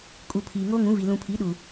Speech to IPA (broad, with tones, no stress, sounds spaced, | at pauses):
kʼ u˨ pʰ iː˨ ŋ oː˦ ŋ ũ˨˦ v i˨ l ũ˨ pʰ i˨˦ ɗ u˨